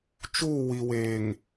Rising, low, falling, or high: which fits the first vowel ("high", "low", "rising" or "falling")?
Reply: falling